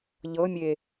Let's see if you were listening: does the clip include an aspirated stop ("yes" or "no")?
no